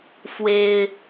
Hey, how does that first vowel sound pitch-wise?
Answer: high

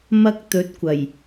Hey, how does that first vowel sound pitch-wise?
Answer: high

